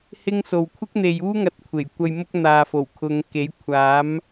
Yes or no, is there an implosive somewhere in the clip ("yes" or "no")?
no